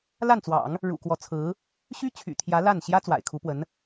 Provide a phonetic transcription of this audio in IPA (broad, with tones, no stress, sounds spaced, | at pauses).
l a˥˩ n t͡s w ɑ̰˨˩˦ ŋ | ɻ ṵ˨˩ k w ɔ˧˥ t͡sʰ ɹ̩˧˥ | ɕ y˥ t͡ɕʰ y̰˨˩ t̪ʰ j ä˧˥ l a˥˩ n ɕ j ä˥ t͡s w a̰˨˩ ɪ̯ kʰ u˧˥ p w ə˧˥ n